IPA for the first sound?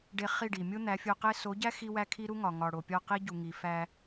ɖ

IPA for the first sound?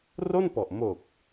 r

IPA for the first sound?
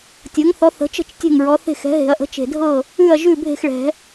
tʲ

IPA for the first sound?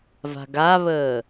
v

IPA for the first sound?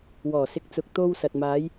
w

